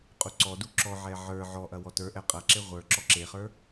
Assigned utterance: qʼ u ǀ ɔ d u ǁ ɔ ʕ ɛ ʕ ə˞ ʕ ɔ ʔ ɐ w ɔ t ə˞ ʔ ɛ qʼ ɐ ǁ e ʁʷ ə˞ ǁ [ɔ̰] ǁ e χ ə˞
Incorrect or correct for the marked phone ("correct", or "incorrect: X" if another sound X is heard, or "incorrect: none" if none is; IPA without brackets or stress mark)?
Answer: incorrect: ɔ